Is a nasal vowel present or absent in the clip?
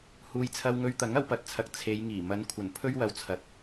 absent